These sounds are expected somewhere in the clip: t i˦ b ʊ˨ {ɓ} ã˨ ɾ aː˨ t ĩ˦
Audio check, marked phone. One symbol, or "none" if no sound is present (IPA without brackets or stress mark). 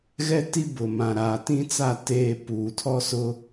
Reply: m